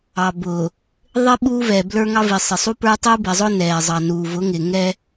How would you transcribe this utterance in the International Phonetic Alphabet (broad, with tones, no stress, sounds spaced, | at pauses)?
ɑ˨ b ʊː˨ | ðˤ ɪ˦ ɓ uː˦ v ɛ˨ b l ə˞˦ ŋ ɑ˦ v i˨ sˤ ɪ˨ sˤ u˦ p ə˞˦ tˤ uː˦ b ɛ˨ zˤ ʊː˦ n ɛː˨ zˤ ɑ˨ n uː˨ v ʊ˨˦ ŋ ɪː˨ ŋ ɛ˦